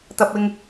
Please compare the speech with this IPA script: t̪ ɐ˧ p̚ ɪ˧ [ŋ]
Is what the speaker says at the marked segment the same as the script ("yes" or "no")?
yes